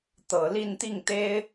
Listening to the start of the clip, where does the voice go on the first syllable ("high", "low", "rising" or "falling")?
low